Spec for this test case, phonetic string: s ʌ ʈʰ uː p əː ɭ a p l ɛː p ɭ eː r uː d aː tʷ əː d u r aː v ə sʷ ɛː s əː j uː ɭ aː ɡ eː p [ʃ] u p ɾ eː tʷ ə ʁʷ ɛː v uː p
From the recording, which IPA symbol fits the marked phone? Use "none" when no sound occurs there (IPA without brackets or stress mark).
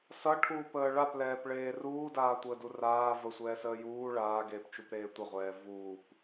t͡ʃ